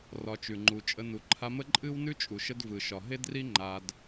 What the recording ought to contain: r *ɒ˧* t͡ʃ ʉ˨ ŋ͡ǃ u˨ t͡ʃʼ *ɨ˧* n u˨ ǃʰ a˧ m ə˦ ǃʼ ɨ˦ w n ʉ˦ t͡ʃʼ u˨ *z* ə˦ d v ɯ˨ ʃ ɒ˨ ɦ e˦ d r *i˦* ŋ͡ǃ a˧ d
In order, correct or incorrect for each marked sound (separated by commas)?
correct, incorrect, incorrect, correct